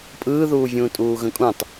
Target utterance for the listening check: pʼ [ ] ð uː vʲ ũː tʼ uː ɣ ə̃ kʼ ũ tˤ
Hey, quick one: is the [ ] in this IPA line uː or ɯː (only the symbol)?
ɯː